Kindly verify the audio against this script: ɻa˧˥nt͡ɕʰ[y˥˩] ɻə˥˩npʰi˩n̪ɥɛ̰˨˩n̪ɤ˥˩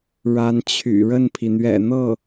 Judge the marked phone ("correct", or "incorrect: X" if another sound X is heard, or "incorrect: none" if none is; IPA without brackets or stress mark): incorrect: y̰˨˩